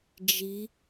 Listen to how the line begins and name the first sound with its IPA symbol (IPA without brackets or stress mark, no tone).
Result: d͡ʒ